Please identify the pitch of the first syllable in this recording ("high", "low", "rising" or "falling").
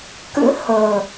rising